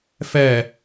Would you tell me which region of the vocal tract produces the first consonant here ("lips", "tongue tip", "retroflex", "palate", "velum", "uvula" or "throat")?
lips